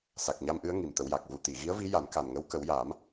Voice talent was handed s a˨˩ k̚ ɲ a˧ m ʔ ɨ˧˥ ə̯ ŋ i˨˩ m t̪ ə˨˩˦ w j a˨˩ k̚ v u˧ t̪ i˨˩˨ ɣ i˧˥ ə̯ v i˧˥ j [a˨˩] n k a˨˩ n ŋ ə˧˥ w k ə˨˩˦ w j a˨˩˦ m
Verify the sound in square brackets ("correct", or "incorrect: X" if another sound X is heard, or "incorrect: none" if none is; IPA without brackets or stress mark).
incorrect: a˨˩˦